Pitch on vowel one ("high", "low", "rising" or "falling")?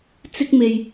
high